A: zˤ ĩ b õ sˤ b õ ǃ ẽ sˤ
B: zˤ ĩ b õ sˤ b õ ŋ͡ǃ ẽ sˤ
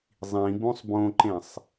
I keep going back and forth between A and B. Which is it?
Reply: A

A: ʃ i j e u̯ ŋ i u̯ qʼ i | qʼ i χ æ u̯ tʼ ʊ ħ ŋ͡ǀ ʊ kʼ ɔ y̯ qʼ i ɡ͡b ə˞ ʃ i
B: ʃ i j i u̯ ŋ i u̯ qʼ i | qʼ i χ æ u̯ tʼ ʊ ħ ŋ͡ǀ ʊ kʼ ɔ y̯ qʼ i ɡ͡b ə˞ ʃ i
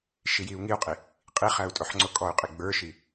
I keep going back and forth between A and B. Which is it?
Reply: B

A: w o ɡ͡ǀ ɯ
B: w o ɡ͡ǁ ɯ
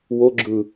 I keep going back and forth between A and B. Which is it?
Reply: B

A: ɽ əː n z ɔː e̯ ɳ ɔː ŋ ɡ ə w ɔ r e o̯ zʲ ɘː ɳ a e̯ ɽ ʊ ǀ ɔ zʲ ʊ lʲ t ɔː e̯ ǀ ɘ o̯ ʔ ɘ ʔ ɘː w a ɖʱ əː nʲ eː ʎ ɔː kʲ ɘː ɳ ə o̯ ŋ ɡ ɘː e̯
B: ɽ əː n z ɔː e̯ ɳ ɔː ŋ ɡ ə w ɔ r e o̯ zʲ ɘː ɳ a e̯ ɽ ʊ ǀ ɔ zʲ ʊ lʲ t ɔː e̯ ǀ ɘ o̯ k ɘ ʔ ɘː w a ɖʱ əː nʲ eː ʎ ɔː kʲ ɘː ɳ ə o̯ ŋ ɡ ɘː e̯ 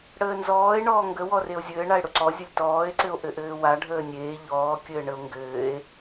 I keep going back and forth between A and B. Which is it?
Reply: A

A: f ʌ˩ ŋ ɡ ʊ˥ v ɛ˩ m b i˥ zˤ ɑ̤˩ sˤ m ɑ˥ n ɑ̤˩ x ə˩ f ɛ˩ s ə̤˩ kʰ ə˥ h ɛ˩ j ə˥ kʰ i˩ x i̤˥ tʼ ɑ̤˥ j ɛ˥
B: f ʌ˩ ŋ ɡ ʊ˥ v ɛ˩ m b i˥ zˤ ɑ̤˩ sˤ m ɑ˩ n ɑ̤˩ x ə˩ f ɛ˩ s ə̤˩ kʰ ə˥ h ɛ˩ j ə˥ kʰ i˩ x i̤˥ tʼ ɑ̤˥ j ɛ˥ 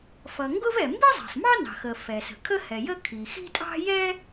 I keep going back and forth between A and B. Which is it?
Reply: A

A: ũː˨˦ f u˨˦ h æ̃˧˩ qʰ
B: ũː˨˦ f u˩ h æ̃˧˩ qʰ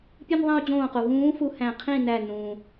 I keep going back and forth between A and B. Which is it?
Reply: A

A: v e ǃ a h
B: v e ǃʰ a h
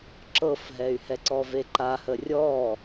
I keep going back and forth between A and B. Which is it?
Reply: A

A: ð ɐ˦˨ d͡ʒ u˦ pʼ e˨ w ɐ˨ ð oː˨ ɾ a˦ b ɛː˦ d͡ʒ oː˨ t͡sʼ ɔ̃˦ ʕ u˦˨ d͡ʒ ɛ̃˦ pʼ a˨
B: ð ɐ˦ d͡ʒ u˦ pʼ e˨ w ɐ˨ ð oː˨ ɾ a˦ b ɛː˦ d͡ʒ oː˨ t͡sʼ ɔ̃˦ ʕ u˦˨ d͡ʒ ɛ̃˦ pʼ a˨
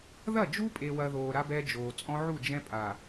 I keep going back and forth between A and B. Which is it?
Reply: A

